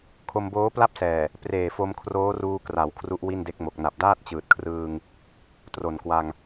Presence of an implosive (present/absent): absent